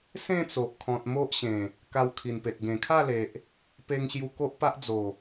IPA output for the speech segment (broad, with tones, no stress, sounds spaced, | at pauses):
s ẽ˥˧ t͡s o˨ ʔ kʰ ɔ̃˨ t̚ m o˦ ʔ ɕ ẽ˨˩ | k a˧ w kʰ i˨˩ n p e˨ t̚ ɡ ẽ˨˩ kʰ a˥˧ l e˨ ʔ | p e˧ ŋ ɕ j u˧ k o˦ ʔ p a˦ ʔ d͡z o˨˩